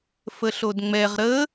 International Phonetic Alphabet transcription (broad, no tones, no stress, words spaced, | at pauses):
fəɬodŋ͡mɛʁ ɾə